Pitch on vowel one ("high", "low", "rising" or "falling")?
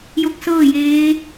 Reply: rising